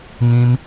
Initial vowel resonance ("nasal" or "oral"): nasal